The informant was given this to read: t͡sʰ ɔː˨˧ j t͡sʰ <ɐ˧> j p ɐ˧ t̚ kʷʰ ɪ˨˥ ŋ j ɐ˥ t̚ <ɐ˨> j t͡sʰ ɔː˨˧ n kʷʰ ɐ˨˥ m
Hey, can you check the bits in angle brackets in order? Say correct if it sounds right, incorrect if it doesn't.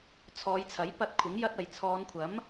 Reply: incorrect: ɐ˨˥, correct

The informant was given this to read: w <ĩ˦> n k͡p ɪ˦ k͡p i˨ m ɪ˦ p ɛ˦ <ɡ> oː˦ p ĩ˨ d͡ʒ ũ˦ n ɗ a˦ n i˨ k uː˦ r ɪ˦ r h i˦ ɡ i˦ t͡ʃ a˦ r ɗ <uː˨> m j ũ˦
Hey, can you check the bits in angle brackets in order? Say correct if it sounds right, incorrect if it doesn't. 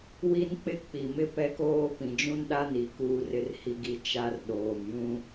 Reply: incorrect: i˦, incorrect: k, incorrect: oː˨

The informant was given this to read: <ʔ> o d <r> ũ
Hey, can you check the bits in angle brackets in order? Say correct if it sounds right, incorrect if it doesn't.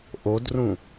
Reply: correct, correct

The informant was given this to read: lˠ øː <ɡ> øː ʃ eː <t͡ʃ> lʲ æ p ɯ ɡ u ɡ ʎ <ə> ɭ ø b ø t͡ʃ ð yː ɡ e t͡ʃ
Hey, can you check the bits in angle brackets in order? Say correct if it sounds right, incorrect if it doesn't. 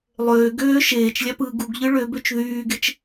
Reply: correct, correct, incorrect: ɯ

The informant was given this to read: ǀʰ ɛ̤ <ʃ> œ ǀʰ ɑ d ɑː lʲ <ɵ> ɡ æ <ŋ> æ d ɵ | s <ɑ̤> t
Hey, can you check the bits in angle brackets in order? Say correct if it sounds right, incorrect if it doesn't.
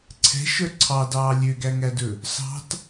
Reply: correct, incorrect: ø, correct, correct

